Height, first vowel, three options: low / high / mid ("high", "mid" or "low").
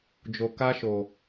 mid